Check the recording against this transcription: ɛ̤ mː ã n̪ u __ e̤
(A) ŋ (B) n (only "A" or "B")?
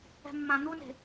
B